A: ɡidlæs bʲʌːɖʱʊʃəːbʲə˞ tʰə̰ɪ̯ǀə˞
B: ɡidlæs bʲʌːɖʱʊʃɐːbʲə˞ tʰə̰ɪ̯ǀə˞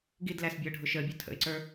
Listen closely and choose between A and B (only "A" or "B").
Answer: A